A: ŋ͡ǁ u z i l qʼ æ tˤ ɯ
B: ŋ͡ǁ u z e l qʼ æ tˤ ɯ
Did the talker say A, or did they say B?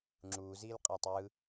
A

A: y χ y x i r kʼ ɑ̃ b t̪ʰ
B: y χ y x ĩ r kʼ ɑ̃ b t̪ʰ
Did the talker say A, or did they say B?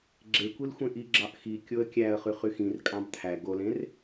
B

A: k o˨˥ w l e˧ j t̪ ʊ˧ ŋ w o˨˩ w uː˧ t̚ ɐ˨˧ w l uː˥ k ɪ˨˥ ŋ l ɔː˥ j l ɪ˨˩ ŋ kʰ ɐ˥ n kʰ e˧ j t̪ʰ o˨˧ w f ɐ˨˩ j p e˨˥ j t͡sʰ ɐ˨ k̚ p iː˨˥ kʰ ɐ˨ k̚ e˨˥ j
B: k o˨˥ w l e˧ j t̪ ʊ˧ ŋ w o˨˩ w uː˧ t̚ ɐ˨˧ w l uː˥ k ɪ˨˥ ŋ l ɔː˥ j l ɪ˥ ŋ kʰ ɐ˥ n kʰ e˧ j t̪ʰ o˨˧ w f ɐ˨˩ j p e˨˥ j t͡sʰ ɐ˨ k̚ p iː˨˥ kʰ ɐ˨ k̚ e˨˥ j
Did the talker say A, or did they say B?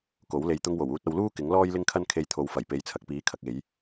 B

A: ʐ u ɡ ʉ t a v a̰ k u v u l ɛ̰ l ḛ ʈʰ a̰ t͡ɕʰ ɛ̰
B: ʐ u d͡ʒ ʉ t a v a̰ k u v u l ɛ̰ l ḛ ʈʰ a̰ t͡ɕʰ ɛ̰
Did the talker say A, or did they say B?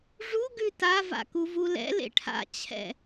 A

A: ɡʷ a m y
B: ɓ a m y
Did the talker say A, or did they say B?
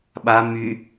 B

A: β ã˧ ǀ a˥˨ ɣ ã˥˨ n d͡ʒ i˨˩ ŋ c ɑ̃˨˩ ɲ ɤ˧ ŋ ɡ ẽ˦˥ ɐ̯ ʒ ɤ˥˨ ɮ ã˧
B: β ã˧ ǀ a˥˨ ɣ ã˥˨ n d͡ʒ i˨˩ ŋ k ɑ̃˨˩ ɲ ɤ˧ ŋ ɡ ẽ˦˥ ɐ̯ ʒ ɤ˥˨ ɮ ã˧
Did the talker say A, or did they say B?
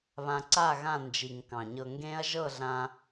B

